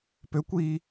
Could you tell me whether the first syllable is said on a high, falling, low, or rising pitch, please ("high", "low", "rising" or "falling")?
rising